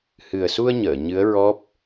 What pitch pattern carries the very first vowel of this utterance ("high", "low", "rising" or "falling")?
low